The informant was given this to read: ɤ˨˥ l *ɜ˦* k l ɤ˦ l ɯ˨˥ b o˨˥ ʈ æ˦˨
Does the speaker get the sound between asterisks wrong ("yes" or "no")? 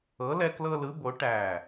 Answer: yes